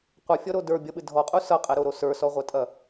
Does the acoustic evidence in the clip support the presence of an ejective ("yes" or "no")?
yes